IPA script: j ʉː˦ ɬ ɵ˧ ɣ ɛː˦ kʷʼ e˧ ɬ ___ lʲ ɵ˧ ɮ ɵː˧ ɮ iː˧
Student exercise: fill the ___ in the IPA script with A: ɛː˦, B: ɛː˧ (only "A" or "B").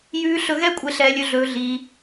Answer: B